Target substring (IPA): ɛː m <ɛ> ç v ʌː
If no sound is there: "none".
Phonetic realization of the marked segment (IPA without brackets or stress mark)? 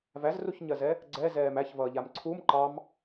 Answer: æ